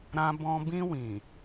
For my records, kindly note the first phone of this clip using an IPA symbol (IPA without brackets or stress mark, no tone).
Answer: ɾ